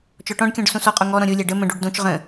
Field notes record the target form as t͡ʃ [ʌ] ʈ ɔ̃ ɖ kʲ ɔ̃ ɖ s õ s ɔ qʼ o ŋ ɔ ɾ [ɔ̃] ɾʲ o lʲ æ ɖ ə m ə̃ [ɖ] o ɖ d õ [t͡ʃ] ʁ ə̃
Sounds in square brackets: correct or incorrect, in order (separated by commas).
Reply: incorrect, correct, correct, correct